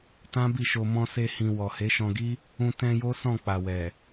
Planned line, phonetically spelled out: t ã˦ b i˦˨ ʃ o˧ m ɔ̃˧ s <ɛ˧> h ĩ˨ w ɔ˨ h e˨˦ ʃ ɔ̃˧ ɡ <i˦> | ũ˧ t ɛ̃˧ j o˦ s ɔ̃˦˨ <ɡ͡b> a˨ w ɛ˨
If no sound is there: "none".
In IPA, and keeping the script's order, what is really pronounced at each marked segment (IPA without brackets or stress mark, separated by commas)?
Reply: e˧, i˦, k͡p